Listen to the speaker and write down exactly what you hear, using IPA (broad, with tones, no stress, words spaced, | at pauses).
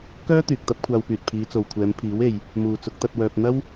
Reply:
kœː˥ t̪yː˨k̚t̪ɐ˥p̚kʷʰaː˧wpyː˨t̚ pʰiː˨˧t͡so˨wkʷʰɛː˨˧mpʰiː˨˥w e˧j | muː˨t͡sʊ˨˥k̚t̪ɐ˧t̚ wœː˧p̚ n̪ɐ˥w